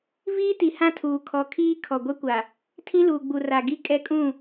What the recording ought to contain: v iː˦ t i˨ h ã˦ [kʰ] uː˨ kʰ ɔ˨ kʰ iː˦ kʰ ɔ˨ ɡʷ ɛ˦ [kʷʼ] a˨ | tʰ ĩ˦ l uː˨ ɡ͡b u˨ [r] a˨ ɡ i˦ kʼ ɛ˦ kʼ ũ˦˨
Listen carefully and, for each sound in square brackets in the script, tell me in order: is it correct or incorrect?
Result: incorrect: tʰ, incorrect: kʷ, correct

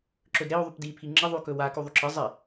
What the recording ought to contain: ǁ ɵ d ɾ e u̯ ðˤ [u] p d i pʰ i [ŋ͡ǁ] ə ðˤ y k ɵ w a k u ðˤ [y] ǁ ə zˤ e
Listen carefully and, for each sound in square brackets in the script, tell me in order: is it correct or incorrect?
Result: incorrect: y, correct, correct

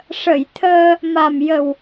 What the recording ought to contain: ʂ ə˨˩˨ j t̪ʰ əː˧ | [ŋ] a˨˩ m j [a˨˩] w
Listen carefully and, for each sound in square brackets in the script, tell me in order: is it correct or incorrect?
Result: incorrect: m, incorrect: ə˨˩

